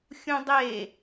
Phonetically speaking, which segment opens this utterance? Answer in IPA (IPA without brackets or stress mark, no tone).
xʲ